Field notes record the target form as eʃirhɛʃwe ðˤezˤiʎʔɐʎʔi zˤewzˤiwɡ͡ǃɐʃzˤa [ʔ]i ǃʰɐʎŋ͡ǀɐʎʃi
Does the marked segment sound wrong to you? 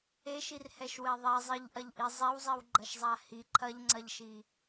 yes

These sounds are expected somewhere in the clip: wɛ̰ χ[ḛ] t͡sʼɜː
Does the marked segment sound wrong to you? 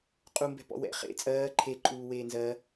no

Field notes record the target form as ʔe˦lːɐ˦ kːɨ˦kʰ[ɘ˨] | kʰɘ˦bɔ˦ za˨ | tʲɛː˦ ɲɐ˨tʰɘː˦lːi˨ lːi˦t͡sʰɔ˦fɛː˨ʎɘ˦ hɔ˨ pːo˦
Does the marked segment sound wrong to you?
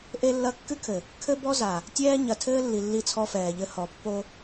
no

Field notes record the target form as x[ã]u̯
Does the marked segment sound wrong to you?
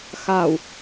yes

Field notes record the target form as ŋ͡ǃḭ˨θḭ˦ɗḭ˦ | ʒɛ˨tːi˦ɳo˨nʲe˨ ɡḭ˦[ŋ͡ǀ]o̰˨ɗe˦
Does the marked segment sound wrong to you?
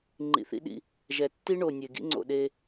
no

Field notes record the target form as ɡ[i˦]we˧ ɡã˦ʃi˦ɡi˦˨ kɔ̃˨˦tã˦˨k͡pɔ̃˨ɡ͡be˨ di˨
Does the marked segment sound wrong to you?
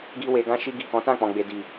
no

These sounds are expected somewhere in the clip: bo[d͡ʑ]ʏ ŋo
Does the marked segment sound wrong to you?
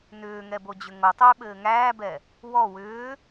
no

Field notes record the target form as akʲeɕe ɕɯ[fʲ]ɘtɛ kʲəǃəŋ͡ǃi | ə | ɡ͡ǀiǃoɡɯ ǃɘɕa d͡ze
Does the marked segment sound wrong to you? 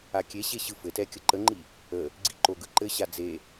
yes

